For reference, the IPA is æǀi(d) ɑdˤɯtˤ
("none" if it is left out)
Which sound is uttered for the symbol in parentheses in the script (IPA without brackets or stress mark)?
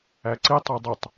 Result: tˤ